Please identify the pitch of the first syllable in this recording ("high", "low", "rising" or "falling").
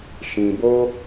low